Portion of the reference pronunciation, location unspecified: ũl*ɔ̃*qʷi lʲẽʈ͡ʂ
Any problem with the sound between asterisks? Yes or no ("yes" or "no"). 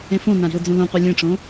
yes